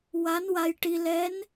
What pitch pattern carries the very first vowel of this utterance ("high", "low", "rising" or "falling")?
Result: rising